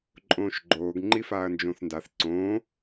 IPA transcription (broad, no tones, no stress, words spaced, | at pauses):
ǃʼõːʃɡ͡ǃoːɡ ŋ͡ǃifaːɐ̯nd͡ʒõθndaθ ǀõː